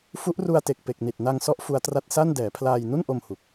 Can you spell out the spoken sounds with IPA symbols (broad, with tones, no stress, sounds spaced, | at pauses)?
f u˦˥ ʔ r u˧ a̯ t e˨˩ k̚ p e˨˩ k̚ n i˨˩ t̚ n a˧ ŋ s ɔ˦˥ ʔ f u˦˥ a̯ t r a˥˩ t̚ s a˥˩ n d ɛː˩˦ pʰ l aː˧ j n u˥˩ n ʔ o˧ m h u˨˩ k̚